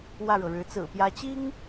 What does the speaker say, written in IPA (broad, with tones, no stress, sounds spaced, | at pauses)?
w ä˥˩ ɻ ɤ˩ ɻ ɻ̩˧˥ t͡s ɹ̩˨˩ p j ä˧˥ t͡ɕ i˥ ŋ